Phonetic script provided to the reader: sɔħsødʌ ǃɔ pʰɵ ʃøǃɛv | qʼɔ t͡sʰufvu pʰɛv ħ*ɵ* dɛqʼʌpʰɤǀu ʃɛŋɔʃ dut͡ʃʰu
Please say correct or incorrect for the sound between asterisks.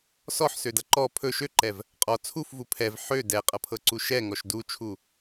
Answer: incorrect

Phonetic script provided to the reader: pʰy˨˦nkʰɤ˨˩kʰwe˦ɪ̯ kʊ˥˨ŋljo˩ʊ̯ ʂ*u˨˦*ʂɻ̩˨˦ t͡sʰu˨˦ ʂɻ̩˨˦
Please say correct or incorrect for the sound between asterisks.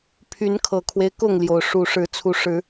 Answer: incorrect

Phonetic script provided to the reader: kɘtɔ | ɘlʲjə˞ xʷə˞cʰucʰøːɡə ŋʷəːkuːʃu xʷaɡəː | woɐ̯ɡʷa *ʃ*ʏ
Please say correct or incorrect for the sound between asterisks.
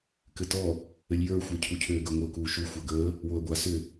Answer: incorrect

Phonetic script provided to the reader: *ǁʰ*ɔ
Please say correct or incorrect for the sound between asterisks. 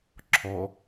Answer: correct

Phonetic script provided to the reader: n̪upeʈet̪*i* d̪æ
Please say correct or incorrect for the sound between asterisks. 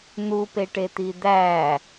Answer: correct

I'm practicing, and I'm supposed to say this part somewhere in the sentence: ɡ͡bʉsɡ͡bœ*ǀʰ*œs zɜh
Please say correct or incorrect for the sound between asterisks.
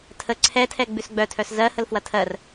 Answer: incorrect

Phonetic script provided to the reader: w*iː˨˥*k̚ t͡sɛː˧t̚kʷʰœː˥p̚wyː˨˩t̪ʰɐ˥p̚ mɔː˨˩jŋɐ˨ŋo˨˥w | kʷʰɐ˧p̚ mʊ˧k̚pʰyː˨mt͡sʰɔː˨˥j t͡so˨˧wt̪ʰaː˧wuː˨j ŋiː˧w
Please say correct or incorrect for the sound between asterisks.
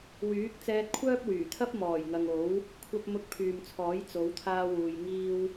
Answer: incorrect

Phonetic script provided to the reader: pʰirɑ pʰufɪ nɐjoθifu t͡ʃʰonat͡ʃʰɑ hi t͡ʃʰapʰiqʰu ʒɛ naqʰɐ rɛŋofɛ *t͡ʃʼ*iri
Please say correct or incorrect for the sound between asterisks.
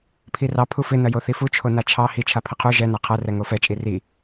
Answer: correct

